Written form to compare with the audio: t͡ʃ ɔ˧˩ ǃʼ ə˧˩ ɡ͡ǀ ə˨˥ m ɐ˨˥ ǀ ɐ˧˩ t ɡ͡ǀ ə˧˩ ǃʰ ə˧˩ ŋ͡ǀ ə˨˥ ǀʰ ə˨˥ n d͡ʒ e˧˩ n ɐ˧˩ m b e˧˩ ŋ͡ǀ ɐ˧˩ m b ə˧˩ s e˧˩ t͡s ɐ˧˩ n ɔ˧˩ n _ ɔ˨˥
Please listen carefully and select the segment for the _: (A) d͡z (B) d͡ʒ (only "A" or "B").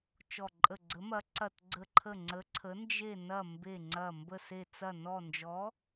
B